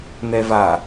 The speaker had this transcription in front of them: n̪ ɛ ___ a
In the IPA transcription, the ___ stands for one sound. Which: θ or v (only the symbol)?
v